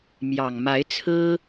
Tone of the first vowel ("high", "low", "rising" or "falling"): low